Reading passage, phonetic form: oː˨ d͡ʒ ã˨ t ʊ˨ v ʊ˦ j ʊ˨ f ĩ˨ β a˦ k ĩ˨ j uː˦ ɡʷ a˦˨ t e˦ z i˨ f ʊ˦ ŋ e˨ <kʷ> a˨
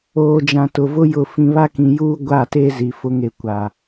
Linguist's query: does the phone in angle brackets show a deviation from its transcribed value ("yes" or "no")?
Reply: no